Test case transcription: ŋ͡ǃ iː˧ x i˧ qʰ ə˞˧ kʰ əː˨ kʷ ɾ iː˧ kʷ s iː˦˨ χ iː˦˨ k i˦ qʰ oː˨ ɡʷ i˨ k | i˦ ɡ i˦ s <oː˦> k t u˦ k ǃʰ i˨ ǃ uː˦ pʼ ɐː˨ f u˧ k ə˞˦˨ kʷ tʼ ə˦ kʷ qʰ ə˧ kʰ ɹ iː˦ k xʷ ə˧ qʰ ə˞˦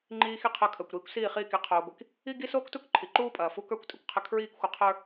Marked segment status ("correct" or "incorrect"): correct